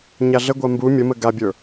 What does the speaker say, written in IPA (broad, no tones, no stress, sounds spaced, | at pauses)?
ɲ a ɮ ə ɡʷ a m b u mʲ ə m ə ɡ a bʲ ə˞